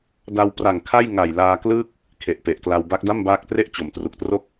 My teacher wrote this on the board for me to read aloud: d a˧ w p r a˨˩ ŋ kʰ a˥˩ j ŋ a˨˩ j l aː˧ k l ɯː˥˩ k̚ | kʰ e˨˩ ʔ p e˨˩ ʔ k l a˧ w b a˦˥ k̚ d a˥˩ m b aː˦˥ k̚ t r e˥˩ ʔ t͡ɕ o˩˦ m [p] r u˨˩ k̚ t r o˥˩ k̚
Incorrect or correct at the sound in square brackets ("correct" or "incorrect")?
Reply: incorrect